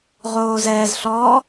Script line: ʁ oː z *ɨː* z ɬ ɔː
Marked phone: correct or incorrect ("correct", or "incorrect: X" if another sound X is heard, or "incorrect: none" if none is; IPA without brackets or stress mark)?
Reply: incorrect: ɛː